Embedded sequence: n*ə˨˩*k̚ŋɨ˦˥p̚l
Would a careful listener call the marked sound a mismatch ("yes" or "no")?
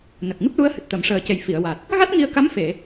no